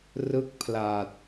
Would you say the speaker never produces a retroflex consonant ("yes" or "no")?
yes